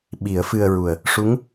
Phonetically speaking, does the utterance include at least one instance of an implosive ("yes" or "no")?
yes